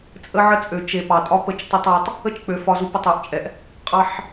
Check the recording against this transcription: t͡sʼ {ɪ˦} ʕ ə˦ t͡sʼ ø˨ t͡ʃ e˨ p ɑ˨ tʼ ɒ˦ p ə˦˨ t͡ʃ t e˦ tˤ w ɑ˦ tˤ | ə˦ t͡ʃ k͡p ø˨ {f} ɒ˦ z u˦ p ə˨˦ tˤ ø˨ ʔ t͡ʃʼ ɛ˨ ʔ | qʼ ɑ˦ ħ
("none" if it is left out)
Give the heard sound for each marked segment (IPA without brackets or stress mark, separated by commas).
ə˦, f